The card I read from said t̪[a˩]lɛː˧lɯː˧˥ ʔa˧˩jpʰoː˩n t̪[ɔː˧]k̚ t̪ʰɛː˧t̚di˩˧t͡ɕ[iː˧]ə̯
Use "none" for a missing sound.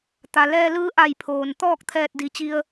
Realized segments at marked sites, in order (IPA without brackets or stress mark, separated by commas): a˩, ɔː˥˨, i˧